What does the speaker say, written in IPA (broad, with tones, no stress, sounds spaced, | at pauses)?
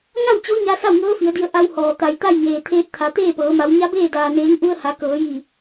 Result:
ŋ a˥˨ w t͡ɕ o˧˥ ɲ a˧ s a˥˨ w ŋ ɤː˧˥ f i˩˧ ə̯ d i˧ ə̯ ʔ a˧ w h ɔː˩ t̪ a˩ j t̪ a˥˨ j ŋ eː˩ t̪ʰ eː˧ t̚ t̪ʰ a˩˧ t̪ eː˥˨ p ɤː˩˧ m a˩˧ w ɲ a˧˥ b eː˥˨ d aː˩ n eː˩˧ ŋ ʔ u˧ ə̯ h a˩˧ k ɤː˩˧ j i˧˩